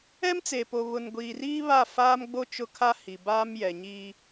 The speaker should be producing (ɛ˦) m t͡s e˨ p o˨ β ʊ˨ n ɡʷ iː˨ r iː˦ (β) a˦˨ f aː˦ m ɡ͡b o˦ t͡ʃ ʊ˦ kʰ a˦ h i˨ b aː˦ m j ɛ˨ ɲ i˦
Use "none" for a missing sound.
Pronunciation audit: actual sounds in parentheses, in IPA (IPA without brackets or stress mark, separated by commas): ɛ˦, β